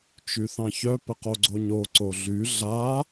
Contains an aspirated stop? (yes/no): no